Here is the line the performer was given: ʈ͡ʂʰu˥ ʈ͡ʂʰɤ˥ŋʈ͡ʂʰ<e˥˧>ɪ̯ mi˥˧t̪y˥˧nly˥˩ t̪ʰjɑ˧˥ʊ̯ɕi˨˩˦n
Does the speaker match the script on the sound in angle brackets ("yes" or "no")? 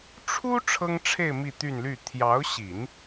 yes